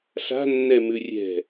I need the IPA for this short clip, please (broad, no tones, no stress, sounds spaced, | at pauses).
ɬ a̤ nː ɛ m ʉ rʲ ɛ̤